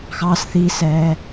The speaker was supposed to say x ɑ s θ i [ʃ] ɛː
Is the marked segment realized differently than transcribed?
yes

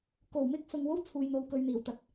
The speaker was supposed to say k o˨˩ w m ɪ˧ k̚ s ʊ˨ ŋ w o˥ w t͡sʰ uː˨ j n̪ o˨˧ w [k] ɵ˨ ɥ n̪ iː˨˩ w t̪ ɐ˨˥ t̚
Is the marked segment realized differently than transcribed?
no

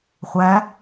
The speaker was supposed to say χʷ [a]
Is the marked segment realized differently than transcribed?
yes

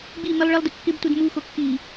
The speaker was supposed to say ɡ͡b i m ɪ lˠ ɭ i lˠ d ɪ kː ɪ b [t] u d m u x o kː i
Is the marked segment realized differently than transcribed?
no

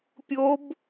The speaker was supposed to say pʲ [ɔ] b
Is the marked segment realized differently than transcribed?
yes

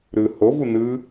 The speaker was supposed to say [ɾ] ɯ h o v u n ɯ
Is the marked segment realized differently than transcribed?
no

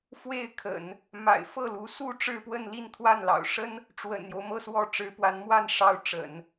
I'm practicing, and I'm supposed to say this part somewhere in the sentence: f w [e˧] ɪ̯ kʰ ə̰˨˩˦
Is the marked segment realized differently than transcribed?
yes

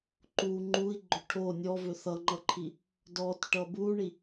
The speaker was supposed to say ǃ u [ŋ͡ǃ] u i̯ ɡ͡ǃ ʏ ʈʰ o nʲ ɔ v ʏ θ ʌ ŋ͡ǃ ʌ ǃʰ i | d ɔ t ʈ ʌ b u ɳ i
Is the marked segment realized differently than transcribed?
no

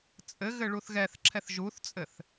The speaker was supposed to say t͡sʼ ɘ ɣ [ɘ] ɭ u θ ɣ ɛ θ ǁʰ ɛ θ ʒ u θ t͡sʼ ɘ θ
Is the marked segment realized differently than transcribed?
no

